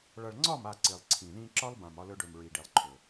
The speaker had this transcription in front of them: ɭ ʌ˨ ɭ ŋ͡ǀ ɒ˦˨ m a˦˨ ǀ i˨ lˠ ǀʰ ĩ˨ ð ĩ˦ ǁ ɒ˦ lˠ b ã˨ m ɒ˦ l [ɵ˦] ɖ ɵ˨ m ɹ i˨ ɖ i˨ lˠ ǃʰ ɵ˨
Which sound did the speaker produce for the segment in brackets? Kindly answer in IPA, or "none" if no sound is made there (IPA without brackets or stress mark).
ɵ˦